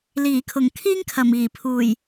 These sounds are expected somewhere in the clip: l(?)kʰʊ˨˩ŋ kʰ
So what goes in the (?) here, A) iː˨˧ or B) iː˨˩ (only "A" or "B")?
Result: B